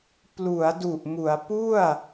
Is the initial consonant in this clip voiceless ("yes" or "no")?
yes